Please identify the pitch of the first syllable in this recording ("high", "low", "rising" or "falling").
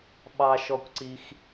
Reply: high